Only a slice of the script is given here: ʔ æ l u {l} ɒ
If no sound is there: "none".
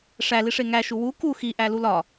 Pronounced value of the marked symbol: l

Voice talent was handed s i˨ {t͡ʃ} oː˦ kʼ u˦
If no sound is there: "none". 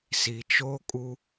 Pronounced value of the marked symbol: t͡ʃ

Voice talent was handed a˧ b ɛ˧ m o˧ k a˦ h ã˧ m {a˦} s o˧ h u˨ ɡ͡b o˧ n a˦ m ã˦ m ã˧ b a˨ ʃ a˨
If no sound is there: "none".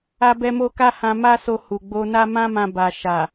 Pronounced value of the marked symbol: a˦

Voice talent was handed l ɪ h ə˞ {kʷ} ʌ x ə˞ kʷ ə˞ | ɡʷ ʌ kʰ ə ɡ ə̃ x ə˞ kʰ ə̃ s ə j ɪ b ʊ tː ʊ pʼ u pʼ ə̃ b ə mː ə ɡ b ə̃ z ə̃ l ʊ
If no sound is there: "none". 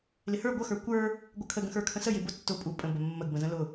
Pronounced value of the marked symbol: ɡʷ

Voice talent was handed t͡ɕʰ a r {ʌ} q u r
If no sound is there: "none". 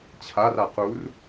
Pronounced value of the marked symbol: a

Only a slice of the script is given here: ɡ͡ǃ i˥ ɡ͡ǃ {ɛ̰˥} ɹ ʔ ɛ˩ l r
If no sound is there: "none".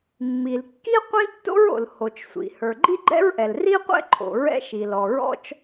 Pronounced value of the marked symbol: ɛ̰˥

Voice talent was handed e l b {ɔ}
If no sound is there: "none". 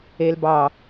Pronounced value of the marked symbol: ɑ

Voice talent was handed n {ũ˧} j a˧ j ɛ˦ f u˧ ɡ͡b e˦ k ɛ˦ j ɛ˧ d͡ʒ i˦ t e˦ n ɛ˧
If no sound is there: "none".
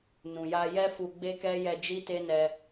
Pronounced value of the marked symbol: ũ˨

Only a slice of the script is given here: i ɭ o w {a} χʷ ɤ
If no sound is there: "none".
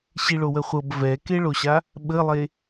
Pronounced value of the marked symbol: ə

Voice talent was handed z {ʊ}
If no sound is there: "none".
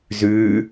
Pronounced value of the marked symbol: ʉ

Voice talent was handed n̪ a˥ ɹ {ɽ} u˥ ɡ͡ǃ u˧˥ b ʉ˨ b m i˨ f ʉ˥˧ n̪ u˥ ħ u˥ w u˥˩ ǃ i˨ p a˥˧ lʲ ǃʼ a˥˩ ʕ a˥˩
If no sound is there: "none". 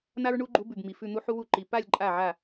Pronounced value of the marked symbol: ɳ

